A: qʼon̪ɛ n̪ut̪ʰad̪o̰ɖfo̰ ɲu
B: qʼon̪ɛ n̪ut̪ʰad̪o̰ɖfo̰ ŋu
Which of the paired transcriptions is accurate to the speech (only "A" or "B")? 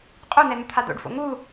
B